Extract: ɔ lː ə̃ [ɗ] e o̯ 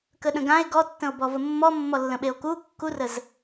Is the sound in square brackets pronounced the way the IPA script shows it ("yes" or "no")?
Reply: no